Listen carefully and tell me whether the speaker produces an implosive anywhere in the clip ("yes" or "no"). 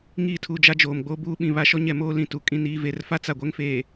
yes